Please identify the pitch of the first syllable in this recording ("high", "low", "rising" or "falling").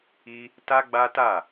high